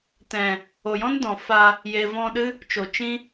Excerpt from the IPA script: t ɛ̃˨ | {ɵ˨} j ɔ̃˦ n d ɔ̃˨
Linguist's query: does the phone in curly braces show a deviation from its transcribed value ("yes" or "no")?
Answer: yes